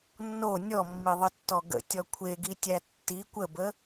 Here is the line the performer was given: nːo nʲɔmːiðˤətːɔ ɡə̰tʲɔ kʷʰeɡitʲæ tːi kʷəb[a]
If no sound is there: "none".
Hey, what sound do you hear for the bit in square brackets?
ə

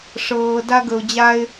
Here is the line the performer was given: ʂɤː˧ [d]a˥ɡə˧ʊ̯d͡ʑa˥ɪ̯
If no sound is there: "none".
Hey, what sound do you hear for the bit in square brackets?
d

